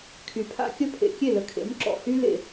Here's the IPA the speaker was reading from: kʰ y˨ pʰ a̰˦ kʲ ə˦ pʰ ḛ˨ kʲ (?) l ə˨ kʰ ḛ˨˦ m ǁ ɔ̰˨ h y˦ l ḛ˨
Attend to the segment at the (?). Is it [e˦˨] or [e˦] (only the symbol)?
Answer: e˦˨